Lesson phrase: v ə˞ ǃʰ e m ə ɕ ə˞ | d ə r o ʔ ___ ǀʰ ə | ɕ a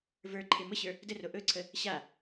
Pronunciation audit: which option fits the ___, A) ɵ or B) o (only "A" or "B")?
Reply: A